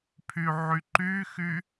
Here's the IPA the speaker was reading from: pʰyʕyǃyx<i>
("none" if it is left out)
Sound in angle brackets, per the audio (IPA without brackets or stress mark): y